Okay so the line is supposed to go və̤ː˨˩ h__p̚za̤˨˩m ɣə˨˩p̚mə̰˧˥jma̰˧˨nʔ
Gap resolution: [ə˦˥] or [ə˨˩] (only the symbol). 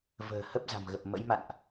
ə˦˥